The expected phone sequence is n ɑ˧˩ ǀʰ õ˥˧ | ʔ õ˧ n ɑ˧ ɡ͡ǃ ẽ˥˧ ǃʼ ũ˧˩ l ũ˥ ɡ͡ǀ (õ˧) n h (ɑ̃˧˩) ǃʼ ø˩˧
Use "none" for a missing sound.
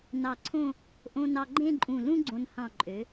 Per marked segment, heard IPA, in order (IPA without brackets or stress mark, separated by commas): õ˧, ɑ̃˧˩